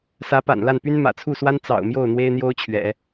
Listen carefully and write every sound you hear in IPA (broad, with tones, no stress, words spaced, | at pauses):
sä˧˥pa̰˨˩nla˥˩npy˥n mä̰˨˩t͡sʰu˥˩swa˥n t͡sɑ̰˨˩ʊ̯ mjo˥˩ʊ̯n̪we˥ɪ̯n̪jo˥ʊ̯t͡ɕʰɥɛ̰˨˩˦